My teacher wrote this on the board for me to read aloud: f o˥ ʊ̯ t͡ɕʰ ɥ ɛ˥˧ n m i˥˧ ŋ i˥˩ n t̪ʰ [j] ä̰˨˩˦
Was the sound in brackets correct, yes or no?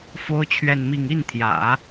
yes